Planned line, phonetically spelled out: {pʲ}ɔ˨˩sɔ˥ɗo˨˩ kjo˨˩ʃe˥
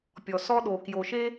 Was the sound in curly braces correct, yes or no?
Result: yes